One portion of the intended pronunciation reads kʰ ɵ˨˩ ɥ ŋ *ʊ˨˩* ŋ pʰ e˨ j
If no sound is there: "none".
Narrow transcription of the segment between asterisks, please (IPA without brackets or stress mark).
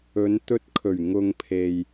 ʊ˧